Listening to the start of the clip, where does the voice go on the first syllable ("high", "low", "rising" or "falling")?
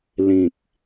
low